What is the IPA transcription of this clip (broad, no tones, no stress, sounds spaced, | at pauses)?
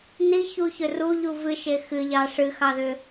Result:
n i ç u ç ʏ r u ʎ u v ɨ ʃ e x ɨ ʎ ɑ ʂ ɨ x ɑ ð ʏ